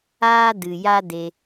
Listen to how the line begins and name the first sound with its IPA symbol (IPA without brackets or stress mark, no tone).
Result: aː